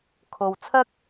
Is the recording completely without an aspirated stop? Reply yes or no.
no